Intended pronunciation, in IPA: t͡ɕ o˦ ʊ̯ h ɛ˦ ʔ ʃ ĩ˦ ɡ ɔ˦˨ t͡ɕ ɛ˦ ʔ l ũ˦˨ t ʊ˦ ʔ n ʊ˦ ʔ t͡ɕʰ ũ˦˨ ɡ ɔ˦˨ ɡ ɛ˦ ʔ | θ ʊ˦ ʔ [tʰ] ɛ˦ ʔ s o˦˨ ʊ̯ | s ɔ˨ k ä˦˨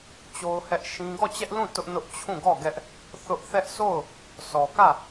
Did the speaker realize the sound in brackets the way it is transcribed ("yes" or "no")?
no